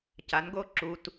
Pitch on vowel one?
rising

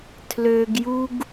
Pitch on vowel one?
low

